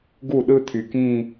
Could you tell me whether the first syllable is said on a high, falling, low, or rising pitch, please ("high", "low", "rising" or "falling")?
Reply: falling